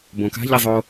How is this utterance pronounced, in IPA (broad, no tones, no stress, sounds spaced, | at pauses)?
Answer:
b õ k a̤ ʎ i zˤ o